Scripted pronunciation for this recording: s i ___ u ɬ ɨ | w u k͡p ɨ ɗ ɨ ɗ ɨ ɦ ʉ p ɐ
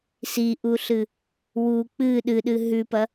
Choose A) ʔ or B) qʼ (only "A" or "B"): A